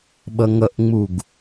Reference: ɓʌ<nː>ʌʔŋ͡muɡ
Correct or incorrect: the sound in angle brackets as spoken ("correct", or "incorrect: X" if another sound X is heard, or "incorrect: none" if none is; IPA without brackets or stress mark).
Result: incorrect: ŋ